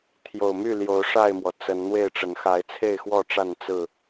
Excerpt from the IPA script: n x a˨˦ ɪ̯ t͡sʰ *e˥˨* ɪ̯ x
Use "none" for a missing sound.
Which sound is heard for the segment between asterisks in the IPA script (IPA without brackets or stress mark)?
e˥˨